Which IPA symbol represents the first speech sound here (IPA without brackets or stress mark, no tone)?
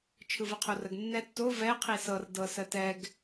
t͡ʃʰ